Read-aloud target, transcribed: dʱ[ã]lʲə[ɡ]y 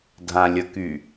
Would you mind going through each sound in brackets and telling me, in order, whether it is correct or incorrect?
correct, incorrect

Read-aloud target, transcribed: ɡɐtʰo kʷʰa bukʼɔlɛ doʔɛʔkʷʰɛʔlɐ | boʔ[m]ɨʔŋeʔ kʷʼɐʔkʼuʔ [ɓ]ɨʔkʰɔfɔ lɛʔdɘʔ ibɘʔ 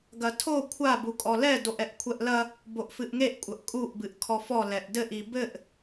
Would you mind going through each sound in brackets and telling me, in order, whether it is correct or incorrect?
incorrect, incorrect

